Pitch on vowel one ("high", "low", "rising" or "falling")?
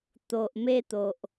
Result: low